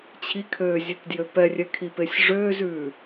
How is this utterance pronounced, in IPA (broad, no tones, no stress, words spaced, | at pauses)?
t͡ɕʰikʰøːzʲetdjø pɛrʲɛkʰipesʲ ʐøːzʉː